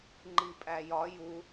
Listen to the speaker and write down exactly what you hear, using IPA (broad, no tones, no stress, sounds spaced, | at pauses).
ŋ͡ǃ i pʼ æ j ɒ j u